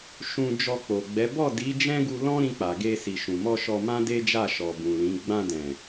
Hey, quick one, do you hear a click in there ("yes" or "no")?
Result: no